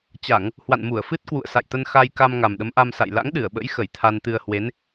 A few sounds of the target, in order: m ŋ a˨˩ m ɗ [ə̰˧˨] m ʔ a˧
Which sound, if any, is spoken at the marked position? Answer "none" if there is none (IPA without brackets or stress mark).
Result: ə˨˦